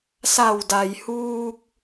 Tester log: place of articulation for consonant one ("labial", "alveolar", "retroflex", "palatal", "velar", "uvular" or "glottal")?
alveolar